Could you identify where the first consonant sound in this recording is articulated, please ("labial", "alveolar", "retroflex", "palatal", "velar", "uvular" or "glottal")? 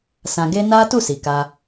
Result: alveolar